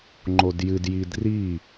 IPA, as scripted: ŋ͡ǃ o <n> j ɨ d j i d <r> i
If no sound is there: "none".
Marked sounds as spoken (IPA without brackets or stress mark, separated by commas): d, r